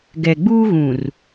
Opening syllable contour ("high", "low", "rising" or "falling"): low